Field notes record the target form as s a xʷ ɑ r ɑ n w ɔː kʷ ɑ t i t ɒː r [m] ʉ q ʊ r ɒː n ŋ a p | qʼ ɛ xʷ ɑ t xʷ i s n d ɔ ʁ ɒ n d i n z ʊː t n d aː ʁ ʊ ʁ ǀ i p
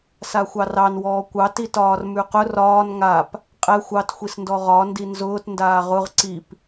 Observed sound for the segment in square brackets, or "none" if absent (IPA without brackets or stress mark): m